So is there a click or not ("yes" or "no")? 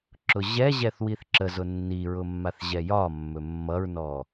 yes